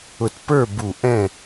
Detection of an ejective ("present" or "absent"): absent